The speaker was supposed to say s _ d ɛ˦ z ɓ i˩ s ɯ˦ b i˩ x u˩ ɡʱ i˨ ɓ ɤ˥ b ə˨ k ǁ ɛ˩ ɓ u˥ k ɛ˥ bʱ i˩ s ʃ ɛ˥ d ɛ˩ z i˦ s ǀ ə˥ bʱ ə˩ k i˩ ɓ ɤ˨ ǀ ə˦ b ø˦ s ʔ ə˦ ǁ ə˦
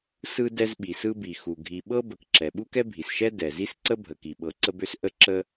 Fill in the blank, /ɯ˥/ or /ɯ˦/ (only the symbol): ɯ˦